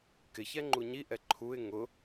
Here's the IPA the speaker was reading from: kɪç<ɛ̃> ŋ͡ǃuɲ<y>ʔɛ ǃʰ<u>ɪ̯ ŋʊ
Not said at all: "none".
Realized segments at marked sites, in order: ɛ, i, u

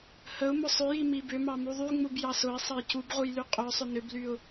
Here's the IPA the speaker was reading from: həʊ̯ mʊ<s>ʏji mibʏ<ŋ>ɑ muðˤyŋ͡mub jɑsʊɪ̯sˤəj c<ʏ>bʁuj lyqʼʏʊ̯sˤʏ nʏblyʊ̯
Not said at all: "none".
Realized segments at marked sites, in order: sˤ, m, u

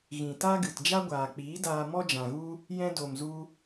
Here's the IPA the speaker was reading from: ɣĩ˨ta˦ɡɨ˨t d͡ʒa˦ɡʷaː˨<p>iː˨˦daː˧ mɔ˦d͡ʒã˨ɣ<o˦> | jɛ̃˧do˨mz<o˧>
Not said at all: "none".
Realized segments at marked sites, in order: k͡p, u˦, u˧

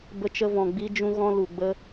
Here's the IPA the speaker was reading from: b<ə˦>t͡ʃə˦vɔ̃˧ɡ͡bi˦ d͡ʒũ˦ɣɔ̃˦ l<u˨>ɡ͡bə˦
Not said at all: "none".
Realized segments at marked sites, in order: ə˦, u˨

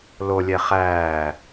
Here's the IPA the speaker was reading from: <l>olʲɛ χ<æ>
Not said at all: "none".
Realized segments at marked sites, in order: l, æː

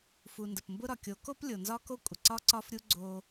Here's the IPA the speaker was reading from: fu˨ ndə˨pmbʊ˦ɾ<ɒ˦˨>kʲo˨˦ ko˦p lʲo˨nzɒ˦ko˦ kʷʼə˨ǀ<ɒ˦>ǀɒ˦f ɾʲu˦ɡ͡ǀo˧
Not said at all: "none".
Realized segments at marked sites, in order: ɒ˨, ɒ˦

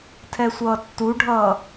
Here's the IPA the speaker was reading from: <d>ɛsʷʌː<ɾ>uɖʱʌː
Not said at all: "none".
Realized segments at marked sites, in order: tʰ, tː

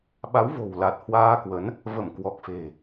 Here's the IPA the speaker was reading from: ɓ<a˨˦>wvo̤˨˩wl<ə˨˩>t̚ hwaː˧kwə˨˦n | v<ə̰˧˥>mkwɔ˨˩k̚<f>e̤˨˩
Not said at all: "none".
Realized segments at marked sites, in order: a˨˦, a˨˩, ə˧˩, f

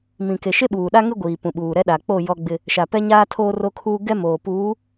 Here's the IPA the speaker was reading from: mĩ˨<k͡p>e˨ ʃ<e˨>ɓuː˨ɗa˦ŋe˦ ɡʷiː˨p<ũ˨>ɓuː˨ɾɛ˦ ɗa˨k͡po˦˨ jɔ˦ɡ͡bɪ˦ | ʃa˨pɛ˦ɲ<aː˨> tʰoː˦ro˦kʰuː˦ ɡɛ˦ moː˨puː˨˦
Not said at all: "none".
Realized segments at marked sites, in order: k, e˦, ũ˨, aː˦

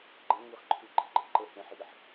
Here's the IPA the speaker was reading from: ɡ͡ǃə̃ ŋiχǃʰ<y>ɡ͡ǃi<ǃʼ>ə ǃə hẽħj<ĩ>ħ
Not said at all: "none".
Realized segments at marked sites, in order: y, ɡ͡ǃ, i

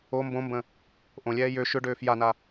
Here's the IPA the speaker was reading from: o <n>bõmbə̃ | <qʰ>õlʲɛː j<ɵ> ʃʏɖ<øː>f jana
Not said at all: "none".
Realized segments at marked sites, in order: m, ʔ, ø, øː

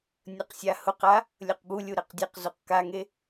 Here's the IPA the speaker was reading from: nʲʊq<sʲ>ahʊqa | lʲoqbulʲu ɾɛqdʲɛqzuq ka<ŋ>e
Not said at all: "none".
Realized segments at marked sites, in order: sʲ, ŋ

